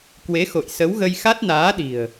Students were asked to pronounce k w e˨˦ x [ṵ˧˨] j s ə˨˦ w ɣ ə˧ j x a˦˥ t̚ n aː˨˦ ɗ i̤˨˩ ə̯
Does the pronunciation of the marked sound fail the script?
yes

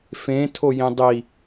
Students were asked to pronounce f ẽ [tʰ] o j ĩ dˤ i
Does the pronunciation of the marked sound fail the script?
no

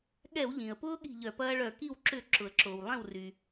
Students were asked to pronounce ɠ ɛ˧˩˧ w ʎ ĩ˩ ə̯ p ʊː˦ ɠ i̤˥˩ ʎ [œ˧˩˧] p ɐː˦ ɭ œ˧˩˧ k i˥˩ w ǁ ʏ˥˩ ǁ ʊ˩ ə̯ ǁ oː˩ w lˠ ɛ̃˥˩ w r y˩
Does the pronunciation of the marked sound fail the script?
no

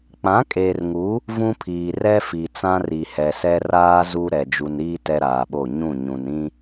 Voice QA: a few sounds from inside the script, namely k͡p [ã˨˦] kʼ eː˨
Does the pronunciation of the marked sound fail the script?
no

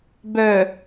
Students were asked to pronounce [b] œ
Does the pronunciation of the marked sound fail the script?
no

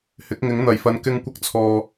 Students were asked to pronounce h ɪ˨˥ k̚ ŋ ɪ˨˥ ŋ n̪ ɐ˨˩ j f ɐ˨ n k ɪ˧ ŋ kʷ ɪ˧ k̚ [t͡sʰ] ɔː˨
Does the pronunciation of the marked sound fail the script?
no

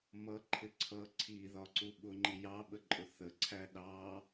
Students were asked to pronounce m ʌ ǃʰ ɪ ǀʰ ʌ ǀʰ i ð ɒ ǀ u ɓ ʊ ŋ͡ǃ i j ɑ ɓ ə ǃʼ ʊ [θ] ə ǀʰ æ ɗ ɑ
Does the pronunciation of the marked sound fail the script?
no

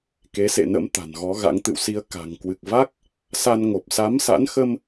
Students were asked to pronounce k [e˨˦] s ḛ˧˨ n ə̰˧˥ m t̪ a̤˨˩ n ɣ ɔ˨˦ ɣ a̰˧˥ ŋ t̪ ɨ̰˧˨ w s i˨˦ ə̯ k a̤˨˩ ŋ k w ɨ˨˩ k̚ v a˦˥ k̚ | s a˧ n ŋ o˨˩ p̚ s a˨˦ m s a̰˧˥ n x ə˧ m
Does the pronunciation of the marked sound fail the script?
no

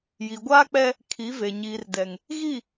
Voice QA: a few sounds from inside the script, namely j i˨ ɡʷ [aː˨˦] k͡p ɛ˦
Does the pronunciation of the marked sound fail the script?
yes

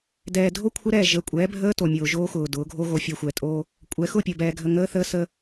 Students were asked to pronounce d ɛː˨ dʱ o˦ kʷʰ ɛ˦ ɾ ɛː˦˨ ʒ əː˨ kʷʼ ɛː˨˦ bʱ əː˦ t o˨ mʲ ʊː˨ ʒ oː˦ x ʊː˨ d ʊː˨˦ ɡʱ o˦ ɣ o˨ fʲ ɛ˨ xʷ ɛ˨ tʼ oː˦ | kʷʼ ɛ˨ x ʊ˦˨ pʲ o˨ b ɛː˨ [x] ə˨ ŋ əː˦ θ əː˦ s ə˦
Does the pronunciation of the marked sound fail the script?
yes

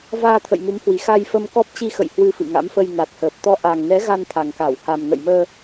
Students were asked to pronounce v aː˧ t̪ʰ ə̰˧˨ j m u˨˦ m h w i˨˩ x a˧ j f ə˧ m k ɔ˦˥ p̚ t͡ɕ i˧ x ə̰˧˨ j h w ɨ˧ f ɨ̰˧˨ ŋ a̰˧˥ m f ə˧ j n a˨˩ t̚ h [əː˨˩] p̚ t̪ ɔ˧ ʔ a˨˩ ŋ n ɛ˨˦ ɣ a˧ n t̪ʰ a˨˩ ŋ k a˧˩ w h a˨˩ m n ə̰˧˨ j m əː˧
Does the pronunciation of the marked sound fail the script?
no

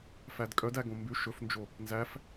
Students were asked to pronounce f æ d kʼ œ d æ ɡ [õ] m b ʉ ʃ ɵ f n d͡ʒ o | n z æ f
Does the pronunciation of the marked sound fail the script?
no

